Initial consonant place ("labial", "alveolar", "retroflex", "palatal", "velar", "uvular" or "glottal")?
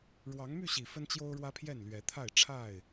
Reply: retroflex